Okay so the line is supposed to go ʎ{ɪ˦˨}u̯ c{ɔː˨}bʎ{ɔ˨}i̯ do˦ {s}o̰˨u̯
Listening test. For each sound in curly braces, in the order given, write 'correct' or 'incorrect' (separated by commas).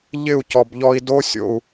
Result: correct, incorrect, incorrect, incorrect